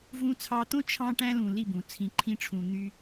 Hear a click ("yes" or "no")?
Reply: yes